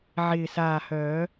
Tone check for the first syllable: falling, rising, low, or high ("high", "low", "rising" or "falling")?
low